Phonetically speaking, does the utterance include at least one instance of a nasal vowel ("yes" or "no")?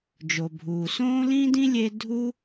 yes